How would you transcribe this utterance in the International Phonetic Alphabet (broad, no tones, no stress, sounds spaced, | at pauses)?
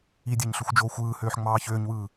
i dʲ æ ɲ ɬ u xʷ d͡ʒ oː xʷ ɯː h øː ħ ŋ͡m ɑː ç øː ɲ w ɯː